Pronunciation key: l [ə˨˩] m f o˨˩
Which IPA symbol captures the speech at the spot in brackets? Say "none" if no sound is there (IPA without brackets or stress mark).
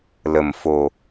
ə˨˩